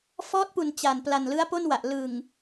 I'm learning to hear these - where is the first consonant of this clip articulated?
lips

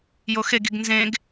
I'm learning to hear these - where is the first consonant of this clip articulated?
palate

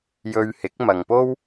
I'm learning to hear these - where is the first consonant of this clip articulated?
palate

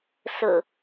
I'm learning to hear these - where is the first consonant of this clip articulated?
tongue tip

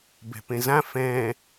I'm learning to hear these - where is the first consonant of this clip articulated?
lips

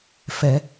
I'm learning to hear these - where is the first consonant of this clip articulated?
lips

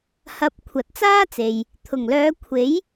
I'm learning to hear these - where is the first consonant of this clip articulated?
throat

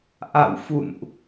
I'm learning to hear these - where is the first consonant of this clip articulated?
throat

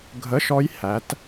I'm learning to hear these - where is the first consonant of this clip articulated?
velum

